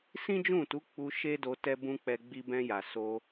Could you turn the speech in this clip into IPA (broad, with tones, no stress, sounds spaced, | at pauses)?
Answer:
s ĩ˦ d͡ʒ ũ˦˨ t u˨˦ k͡p u˧ ʃ e˦ d o˧ t ɛ˦ b ũ˦ k͡p ɛ˧ ɡ͡b i˧ b ɛ̃˧ j a˨ s o˧